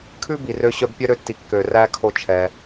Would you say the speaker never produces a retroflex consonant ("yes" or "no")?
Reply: yes